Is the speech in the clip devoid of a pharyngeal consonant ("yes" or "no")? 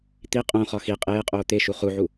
no